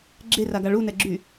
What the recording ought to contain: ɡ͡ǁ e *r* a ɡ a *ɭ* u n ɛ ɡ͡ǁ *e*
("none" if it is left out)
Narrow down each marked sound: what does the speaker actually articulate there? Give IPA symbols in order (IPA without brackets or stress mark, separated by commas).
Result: r, ɭ, y